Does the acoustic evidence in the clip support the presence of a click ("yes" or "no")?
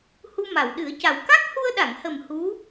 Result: no